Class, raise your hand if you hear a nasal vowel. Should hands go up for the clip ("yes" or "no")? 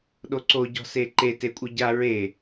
no